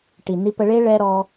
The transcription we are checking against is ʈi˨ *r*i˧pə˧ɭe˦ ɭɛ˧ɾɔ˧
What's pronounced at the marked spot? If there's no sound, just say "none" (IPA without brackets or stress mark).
n